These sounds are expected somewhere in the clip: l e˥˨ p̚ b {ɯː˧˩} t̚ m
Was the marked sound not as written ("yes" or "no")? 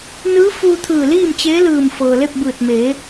no